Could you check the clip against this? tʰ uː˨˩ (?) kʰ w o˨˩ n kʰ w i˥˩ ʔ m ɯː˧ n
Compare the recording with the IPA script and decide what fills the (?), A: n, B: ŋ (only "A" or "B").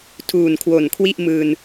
A